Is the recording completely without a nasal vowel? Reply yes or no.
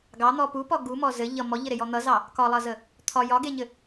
yes